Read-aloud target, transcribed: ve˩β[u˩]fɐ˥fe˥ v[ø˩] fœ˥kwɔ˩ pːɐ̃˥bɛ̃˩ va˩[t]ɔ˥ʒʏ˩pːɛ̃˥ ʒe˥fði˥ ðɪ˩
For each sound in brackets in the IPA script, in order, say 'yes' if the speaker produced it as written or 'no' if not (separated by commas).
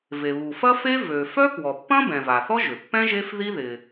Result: yes, yes, no